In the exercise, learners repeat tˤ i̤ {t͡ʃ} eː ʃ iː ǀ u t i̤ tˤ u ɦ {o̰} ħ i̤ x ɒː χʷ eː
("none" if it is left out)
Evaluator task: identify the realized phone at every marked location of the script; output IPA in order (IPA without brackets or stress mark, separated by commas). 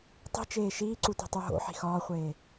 t͡ʃ, o̰